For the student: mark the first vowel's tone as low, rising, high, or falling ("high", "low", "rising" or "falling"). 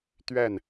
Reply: falling